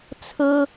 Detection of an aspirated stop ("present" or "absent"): present